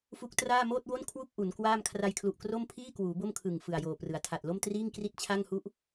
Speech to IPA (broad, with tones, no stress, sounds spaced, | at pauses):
f u˦˥ k̚ t r aː˥˩ m oː˥˩ t̚ w o˥˩ n kʰ w u˥˩ k̚ ʔ u˩˦ n k w aː˥˩ m kʰ r a˧ j kʰ l u˨˩ ʔ k r o˥˩ m pʰ iː˥˩ k w uː˩˦ b o˥˩ m kʰ ɯ˨˩ ŋ f ɯ˨˩ a̯ j oː˨˩ p r ɯ˩˦ a̯ tʰ a˨˩ t̚ l o˥˩ m t r iː˥˩ ŋ k r i˥˩ t̚ t͡ɕʰ a˥˩ ŋ h u˥˩ ʔ